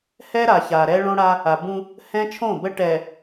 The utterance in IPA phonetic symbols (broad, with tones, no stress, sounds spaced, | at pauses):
h ɛ˦ ɾ a˨ ç a˨ ɾ ɛ˦ ɭ õ˦ ɽ a˦ | a˨ b ũ˦ | h ɛ̃˦ t͡ʃʰ õ˦˨ b ə˦ ʈ ɛ˨